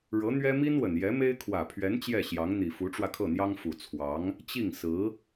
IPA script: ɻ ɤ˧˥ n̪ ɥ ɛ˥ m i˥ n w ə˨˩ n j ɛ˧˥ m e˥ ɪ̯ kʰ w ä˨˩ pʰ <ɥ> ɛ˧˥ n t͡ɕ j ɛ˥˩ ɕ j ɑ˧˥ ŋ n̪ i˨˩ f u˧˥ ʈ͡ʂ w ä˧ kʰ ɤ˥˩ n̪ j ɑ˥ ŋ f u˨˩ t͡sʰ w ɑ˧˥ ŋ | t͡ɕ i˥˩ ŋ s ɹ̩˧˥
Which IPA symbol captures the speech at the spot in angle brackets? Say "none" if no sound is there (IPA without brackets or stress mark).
ɥ